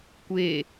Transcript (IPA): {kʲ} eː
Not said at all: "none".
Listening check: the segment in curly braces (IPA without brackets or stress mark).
kʷ